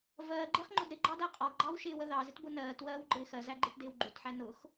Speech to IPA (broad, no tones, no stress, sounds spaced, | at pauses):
v ɜː ɡ͡ǃ ɪː χ ŋ͡ǃ ʊ d ɾ ɪ ɡ͡ǃ ɑ d æ qʼ ɒ ɡ ɡ͡ǃ ɑ w ʃ ɪː w ə ð ɑ z ɪ t b ʊ n ɜː t w ɜː w ɡ͡ǃ ɪː x ɜ z æ ɡ͡ǃ ɪː t d ɪː w ɡ͡ǃ u t ħ æ n ʊ x